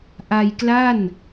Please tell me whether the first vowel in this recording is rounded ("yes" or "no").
no